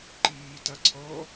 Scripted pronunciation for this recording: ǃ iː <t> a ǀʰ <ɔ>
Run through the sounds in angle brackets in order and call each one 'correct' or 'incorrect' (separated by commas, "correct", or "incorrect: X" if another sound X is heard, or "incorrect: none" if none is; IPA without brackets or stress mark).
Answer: correct, correct